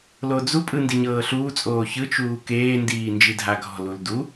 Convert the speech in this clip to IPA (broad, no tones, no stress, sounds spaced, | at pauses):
l o d͡z u pʼ ɯ n d i ɲ ɤː ɬ uː t͡sʼ oː ç ɯ t͡ʃ uː k eː n d iː n d͡ʒ i dʱ a ɡʱ ɔ̤ l u l d u